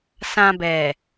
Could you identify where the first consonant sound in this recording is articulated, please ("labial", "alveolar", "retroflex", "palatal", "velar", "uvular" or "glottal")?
alveolar